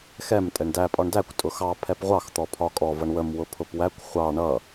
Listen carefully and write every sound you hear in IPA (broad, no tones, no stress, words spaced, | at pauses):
xɛm tʼɛɳdæ pʼɒɳdækʷ tʼʊxɑ pʰɛpʁʷɑx t̪ɔpʰɒkʼɔ vʌɳwəm wʊpʰʊpwækʷ χʷɑ ɳʌ